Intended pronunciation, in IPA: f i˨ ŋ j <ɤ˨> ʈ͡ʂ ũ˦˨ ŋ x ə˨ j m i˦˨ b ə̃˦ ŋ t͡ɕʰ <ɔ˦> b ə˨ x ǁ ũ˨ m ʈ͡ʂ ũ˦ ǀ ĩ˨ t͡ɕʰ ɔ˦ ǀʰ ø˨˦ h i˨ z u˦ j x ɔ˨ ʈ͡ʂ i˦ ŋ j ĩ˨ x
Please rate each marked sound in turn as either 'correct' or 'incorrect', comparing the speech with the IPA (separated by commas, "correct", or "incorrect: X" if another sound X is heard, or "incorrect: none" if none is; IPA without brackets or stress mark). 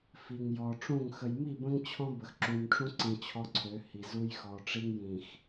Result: incorrect: ɔ˨, incorrect: ɔ̃˦